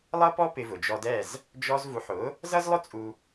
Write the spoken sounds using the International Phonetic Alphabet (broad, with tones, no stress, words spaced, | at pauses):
lˠʌ˥pɔ˥ pɪ˧vʊ˩d͡ʒɔ˧dɛ˥˩z | d͡ʒɔ˧zvu˩˥ħʊ˩˥ | zʌ˥zlˠʊ˥t͡sʼu˧